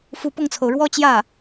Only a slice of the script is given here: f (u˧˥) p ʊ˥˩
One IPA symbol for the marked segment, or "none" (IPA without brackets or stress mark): u˧˥